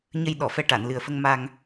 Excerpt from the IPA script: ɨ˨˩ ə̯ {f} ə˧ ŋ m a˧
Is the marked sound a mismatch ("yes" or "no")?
no